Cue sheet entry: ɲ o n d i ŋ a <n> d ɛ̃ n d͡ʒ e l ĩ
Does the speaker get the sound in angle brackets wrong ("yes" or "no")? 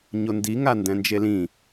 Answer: no